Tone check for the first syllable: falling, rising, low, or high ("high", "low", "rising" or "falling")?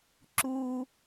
low